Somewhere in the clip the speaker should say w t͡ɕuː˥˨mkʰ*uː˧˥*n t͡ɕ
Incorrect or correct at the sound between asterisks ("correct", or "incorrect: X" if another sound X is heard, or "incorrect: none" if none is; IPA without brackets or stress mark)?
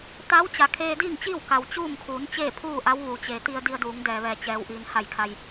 incorrect: uː˩˧